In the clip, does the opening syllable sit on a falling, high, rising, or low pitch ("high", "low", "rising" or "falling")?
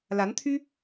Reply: rising